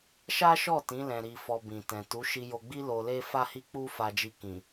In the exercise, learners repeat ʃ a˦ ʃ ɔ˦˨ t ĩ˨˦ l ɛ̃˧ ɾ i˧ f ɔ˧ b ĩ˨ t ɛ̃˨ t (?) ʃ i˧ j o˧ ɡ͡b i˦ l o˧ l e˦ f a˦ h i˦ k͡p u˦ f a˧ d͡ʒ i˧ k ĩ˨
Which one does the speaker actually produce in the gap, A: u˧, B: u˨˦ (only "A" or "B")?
B